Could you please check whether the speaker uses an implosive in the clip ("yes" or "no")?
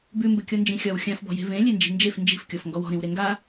no